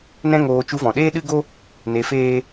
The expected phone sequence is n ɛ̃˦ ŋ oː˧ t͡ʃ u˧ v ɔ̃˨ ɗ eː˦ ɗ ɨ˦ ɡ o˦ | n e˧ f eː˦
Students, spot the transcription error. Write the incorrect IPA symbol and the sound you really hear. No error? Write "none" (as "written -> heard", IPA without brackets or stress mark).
none